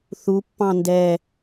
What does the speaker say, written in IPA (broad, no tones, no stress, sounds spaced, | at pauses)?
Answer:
θ u pː ɑ̃ n d ɛ